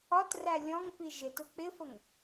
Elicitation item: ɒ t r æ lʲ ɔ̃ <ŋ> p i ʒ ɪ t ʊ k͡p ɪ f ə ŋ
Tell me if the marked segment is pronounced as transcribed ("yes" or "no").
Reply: yes